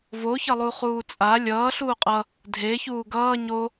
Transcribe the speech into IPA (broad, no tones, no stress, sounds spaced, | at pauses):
v o ç ʌ lˠ u χ uː t͡sʼ a lʲ ʌː ɬ uː qʼ ʌ | dʱ e ç uː ɡ ʌː ɲ o